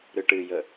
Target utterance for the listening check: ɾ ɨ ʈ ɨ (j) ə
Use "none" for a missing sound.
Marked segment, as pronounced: j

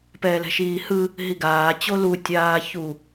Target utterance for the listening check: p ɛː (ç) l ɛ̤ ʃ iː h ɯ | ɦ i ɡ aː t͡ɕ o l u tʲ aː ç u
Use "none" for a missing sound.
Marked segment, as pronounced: none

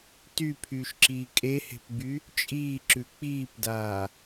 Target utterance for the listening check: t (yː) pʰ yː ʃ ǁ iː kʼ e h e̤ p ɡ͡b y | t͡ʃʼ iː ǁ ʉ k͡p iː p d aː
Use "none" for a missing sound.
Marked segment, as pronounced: y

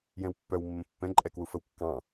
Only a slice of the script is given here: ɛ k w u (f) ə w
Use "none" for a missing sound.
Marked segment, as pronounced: f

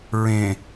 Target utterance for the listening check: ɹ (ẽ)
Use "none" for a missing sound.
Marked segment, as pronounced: ẽ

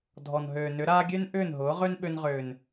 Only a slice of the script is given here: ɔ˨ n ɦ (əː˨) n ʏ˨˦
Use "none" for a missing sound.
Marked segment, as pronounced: øː˨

